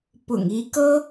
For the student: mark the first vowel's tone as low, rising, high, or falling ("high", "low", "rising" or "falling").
low